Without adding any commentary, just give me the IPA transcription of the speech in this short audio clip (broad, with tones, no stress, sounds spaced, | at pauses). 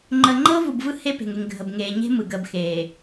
ŋ͡ǃ əː˨ ŋ͡ǃ ɤː˦ v u˨ b v ɯ˦ h e˦ p e̤˨ ŋ e˨ ŋ ɡʱ ə˨ b ŋ eː˨ ɲ e̤˦ m ɯ˨ ɡ əː˨ b x eː˨